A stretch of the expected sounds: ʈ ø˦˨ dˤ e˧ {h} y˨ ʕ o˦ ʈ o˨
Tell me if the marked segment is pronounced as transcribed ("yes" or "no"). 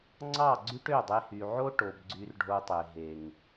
yes